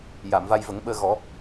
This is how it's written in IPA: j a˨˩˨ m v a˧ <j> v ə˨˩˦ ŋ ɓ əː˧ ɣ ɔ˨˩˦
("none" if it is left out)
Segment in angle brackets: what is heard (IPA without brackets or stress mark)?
j